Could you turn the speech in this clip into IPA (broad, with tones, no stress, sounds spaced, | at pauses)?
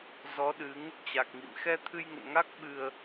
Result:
z ɔ˨˦ ɗ ɨ˨˦ ŋ | t͡ɕ a˨˩ k̚ ŋ ḭ˧˨ m x ɛ˧ t̪ʰ ɨ˧ j ŋ ə̰˧˨ n ŋ a˦˥ k̚ ɓ ɨ˧ ə̯